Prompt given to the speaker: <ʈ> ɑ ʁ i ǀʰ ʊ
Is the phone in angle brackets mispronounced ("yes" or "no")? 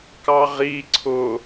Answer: yes